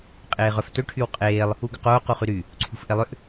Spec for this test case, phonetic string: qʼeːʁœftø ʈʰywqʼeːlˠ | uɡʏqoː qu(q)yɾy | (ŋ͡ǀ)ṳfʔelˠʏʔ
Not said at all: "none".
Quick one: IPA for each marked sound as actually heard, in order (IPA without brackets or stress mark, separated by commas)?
χ, ǀʰ